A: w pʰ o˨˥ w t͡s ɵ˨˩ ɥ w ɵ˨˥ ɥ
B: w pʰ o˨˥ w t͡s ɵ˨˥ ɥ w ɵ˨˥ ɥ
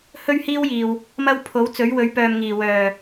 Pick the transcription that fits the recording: B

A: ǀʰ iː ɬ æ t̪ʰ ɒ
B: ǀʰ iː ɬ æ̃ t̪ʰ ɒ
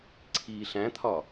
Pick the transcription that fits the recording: B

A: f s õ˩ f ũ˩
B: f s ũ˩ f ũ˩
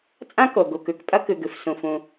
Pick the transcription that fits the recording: B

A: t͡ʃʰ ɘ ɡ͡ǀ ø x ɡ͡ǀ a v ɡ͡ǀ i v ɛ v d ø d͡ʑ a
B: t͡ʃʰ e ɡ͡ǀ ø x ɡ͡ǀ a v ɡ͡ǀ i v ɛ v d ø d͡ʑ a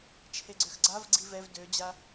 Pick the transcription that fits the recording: B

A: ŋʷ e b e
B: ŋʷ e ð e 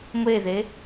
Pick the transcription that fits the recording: B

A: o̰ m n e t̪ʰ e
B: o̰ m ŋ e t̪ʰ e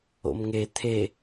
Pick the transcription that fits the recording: B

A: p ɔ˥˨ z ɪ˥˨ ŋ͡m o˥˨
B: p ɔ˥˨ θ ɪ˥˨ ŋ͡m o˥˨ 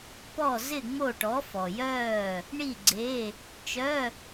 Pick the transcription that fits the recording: A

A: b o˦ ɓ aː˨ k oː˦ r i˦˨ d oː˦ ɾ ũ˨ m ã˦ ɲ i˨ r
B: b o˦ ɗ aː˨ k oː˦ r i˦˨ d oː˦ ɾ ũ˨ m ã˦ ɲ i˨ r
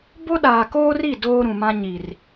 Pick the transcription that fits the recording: B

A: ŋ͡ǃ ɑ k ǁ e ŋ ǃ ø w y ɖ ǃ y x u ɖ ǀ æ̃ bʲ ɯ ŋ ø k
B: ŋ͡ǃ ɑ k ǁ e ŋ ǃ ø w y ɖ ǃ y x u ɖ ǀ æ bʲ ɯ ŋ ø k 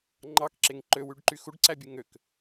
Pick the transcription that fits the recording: B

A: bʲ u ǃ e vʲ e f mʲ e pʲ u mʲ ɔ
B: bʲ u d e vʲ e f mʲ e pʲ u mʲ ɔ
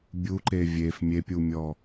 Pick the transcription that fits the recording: A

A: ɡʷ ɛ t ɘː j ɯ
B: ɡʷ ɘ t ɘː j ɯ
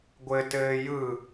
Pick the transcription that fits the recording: B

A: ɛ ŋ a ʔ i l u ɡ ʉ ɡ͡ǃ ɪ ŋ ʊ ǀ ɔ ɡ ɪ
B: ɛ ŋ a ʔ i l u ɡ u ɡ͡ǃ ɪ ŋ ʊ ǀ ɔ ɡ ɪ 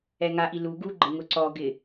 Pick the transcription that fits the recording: B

